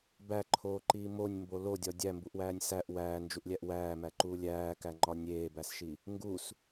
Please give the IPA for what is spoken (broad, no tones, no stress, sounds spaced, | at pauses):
b æ ǃʰ oː ǃ iː m o nʲ m b o l o dʲ ɒ dʲ æ m b u ʔ w æː nʲ s æ ʔ w æː n d͡ʒ u ʔ lʲ æ ʔ w æː m æ ǃ uː lʲ æː k æ ŋ͡ǃ ɒ nʲ eː b æ s ʃ i | ŋ ɡ u s